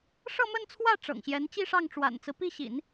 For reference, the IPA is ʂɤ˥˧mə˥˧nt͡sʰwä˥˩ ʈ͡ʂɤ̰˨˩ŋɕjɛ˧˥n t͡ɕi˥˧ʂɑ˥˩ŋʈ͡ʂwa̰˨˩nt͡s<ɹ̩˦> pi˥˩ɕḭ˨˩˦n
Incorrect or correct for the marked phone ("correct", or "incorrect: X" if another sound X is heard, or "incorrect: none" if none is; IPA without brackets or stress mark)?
correct